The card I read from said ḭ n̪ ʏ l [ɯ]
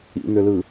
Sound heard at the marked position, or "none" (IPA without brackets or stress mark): ɯ